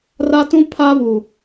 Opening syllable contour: high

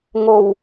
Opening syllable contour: low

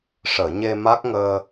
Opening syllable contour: low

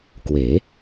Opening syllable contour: rising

